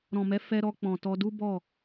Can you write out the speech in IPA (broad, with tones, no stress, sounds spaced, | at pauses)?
ɾ ɔ̃˨ m ɛ˨˦ f ɛ˧ ɾ ɔ˧ k͡p ɔ̃˨ t ɔ˧ d u˦ b ɔ˦˨